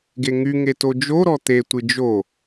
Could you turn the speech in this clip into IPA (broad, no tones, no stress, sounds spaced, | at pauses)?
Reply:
ɡ e ŋ y ŋ e t o d͡ʒ o ɾ ɔ t̪ e tʷ ɨ d͡ʒ o